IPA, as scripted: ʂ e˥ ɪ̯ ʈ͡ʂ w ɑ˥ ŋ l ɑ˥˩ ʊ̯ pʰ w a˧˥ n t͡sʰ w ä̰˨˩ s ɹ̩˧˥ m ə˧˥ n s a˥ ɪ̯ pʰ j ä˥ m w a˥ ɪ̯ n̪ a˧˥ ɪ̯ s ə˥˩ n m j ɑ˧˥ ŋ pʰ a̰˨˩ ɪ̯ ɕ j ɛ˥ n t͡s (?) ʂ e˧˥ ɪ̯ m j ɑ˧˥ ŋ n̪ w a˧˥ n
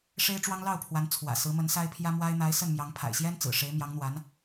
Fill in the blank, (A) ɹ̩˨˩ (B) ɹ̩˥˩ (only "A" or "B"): A